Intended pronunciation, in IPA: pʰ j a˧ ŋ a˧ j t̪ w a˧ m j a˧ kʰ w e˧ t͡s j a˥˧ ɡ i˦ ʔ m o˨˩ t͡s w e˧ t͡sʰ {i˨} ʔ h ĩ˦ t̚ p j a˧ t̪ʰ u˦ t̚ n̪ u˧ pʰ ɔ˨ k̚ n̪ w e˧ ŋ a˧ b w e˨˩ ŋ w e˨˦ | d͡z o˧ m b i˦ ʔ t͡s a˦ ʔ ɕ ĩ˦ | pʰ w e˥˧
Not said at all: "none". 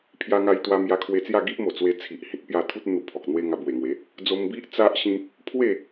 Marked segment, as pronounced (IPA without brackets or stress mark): i˨